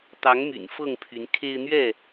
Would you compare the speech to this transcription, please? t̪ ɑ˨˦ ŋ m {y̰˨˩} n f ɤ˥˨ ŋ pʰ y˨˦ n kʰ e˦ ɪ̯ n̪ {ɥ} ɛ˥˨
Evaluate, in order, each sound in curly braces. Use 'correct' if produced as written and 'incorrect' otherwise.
correct, correct

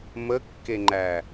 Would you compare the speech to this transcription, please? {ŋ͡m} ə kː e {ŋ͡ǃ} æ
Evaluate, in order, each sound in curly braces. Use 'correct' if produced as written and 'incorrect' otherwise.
incorrect: m, correct

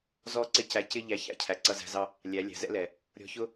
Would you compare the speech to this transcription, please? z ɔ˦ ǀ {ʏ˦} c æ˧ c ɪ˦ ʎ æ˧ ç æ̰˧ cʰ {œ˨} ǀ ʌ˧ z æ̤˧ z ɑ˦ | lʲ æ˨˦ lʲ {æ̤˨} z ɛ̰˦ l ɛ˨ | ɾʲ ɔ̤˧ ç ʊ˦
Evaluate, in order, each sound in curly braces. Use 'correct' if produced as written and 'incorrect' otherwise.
incorrect: ɪ˦, incorrect: æ˨, correct

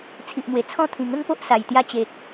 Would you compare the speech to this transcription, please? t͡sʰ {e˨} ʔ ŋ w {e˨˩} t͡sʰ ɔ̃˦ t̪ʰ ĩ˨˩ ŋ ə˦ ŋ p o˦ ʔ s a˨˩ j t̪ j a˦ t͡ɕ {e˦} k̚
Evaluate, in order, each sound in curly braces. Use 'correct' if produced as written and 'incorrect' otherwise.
incorrect: i˨, correct, incorrect: e˨

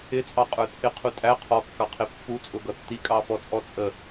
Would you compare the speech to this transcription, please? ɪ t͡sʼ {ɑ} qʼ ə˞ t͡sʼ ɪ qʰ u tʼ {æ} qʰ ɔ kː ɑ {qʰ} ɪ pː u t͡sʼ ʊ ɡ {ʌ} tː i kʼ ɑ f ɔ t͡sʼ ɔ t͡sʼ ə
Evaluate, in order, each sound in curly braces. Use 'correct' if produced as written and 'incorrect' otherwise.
correct, correct, correct, correct

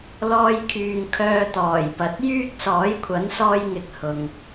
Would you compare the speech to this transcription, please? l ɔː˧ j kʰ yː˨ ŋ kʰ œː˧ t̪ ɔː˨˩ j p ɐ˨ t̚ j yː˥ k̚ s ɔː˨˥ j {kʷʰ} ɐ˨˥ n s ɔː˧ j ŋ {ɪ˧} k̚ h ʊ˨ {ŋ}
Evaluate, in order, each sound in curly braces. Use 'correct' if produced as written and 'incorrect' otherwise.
correct, incorrect: ɪ˨˥, correct

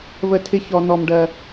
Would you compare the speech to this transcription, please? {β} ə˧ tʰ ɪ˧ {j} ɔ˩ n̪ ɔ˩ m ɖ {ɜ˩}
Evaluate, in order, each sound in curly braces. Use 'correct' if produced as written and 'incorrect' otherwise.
correct, incorrect: ç, correct

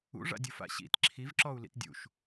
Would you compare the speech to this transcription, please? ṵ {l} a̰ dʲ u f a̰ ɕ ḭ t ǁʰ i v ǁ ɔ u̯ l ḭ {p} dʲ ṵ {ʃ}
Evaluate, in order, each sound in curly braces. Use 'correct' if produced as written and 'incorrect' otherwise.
incorrect: ʐ, incorrect: t, correct

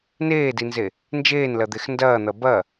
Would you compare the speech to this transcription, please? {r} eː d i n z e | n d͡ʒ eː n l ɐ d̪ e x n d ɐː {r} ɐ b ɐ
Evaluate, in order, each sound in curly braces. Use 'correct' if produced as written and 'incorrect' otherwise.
incorrect: n, incorrect: n̪

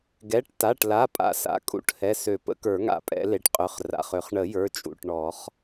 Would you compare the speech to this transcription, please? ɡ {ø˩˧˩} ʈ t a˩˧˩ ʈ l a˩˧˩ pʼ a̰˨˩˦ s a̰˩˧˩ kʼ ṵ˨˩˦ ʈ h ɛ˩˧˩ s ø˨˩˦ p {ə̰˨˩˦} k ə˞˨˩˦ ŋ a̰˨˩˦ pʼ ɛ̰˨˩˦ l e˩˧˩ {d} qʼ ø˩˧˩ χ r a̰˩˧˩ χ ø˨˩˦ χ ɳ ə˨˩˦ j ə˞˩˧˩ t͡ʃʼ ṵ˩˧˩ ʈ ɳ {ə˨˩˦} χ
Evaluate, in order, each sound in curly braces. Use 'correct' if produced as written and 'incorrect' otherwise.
incorrect: ɛ˩˧˩, correct, incorrect: ʈ, incorrect: ɔ˨˩˦

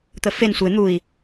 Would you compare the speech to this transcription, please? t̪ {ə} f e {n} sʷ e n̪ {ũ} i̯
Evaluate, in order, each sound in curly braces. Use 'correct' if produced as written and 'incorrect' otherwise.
correct, correct, incorrect: u

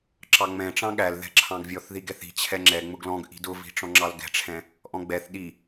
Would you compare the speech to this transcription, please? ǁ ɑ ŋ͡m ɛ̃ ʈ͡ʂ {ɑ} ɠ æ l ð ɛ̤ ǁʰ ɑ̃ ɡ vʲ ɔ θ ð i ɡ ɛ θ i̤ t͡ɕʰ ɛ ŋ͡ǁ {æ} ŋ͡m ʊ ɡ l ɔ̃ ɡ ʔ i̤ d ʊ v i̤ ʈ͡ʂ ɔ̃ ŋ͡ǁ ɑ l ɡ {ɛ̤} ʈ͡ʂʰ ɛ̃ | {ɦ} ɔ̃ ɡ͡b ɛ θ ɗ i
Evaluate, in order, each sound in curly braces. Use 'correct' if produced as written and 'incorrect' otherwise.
incorrect: ɑ̃, incorrect: ɛ, correct, incorrect: ʔ

